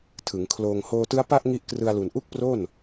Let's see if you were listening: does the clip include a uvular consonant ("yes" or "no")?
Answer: no